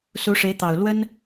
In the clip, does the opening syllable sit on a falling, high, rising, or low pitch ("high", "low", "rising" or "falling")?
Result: rising